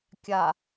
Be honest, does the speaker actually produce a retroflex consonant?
no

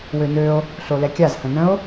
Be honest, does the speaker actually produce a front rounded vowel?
yes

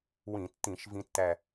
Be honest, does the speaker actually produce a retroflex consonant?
no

